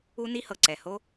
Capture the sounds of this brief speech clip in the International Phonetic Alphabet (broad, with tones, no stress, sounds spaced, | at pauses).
u˥ n i˥ h ɤ˩ ǀ ɛ˩ h o˥